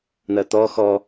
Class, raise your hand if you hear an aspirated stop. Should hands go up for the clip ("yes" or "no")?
no